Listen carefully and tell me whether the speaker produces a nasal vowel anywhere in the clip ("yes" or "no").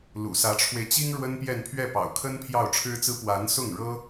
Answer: no